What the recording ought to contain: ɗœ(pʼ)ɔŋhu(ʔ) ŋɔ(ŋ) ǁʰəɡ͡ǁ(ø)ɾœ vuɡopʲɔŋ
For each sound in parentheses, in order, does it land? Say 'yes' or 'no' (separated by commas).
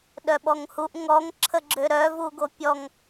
no, yes, yes, yes